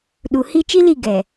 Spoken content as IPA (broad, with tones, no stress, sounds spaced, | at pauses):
ɗ u˨ h i˦ t͡ʃ i˦ l i˦˨ ɡ ɛ˨